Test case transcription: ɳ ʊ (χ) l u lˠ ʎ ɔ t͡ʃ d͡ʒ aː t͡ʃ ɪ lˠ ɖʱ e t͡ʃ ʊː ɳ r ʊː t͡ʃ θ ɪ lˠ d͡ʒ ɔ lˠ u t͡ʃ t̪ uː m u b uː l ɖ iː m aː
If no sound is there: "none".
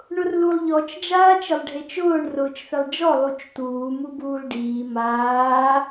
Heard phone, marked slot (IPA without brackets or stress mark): r